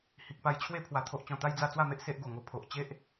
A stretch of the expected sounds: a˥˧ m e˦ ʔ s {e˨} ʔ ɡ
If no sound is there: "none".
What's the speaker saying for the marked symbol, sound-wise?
e˦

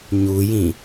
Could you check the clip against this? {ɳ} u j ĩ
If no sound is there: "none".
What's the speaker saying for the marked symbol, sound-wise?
ɲ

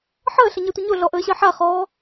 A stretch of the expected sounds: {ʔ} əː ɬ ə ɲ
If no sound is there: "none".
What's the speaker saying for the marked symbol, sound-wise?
ħ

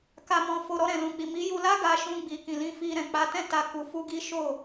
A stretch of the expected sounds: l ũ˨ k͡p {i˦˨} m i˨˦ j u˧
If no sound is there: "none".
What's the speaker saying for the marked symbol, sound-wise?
i˨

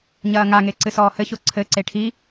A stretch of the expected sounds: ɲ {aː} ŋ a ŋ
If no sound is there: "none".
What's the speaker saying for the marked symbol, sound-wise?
ɐː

